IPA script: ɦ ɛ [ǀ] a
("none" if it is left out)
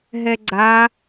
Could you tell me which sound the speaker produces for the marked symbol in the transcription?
ɡ͡ǀ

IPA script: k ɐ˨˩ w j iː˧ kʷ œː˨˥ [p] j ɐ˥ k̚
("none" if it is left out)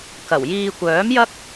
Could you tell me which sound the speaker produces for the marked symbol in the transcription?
m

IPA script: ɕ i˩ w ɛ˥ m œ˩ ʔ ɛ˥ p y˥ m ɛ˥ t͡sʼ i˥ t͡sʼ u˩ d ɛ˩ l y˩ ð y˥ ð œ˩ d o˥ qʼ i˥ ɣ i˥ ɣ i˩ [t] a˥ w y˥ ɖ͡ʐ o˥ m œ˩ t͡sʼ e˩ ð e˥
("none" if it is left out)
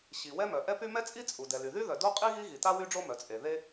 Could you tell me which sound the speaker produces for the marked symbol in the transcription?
t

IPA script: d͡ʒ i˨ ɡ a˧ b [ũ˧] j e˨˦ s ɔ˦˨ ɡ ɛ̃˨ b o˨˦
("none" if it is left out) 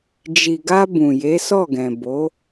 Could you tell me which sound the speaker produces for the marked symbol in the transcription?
ũ˨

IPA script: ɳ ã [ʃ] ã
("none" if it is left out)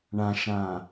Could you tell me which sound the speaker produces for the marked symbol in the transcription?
ʃ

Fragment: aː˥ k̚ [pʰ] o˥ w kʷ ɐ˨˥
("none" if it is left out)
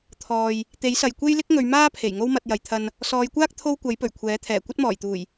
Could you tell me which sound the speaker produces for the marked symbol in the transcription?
t̪ʰ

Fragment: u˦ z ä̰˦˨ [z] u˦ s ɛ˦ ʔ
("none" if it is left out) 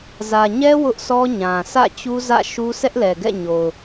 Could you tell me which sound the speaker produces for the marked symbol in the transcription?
ʃ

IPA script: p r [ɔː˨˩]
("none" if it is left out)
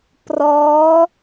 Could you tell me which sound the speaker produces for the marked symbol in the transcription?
ɔː˦˥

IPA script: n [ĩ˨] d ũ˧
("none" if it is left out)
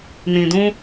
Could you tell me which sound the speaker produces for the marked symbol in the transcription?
ĩ˨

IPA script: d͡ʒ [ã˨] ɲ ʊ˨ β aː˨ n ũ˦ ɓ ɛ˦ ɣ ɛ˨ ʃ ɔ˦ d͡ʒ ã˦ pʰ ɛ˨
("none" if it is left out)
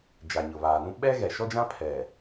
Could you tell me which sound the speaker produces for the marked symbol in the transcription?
a˨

